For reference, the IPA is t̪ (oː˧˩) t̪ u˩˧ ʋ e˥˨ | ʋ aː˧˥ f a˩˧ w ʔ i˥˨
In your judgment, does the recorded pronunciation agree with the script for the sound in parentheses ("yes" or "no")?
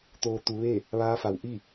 no